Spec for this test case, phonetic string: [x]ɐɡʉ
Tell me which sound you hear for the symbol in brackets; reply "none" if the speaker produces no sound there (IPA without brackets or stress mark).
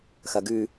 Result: x